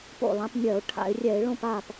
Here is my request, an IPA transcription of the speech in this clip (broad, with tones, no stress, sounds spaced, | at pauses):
p o̰˥˨ lˠ ã˧˥ p nʲ ɜ˧˩˧ ʊ̯ ʈʰ a̰˧˩˧ ɪ̯ rʲ ɛ˧˩˧ ɪ̯ ɭ õ˥˨ p a˥˨ p